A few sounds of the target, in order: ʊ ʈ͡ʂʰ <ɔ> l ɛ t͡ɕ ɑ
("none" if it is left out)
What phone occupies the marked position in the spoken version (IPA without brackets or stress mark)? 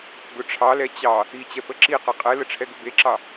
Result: ɑ